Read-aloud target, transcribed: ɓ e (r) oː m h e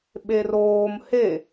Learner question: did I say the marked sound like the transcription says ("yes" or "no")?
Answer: yes